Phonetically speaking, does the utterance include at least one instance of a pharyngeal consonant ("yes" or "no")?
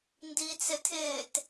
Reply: no